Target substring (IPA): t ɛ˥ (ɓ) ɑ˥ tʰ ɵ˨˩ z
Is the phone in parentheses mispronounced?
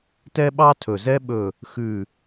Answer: no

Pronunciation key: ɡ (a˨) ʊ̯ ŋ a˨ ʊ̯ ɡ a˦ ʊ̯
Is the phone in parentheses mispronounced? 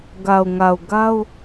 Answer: no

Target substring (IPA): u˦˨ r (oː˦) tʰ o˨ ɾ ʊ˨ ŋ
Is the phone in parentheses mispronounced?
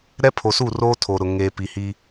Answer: no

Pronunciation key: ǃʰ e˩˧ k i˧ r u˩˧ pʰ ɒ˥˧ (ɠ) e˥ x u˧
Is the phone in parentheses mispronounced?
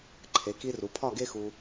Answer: yes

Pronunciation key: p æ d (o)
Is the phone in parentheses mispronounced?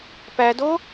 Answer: no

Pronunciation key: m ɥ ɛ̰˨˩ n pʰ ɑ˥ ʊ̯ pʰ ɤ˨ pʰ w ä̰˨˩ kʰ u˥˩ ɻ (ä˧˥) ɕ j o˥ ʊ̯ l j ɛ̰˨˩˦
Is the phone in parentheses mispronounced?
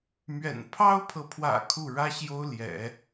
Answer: yes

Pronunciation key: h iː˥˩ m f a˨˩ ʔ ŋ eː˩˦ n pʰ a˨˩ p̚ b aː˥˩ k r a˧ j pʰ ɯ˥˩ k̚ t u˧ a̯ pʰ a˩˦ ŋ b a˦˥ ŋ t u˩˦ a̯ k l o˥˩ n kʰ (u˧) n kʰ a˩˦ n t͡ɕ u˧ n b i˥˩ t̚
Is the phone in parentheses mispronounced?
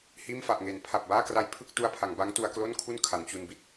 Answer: yes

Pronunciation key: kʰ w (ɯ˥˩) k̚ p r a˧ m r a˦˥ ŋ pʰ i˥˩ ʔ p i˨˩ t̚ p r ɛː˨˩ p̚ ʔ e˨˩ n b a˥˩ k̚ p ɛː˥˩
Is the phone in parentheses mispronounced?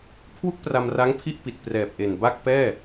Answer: yes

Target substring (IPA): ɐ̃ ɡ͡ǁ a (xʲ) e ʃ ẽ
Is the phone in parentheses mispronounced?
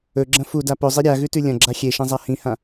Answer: no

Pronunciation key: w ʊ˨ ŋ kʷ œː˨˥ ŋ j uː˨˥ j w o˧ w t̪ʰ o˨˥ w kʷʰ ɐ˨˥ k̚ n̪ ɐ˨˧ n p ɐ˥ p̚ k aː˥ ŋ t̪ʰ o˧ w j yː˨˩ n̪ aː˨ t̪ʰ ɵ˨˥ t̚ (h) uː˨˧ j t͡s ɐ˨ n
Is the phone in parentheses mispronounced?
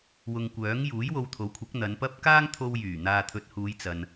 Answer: no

